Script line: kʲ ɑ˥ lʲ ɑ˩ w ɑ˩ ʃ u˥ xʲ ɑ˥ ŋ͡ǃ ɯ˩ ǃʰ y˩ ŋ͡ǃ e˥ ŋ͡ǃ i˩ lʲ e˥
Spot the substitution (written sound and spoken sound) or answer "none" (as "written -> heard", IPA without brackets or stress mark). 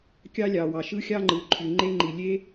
u˥ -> ɯ˥